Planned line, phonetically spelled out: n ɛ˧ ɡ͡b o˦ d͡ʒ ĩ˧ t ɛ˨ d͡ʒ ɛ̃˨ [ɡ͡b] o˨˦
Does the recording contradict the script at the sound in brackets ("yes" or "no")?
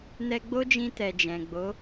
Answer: no